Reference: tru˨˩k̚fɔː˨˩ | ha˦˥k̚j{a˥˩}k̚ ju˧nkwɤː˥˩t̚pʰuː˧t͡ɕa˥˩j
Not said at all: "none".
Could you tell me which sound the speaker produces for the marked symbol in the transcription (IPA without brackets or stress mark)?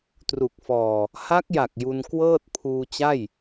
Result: a˨˩